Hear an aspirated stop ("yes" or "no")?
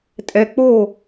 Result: no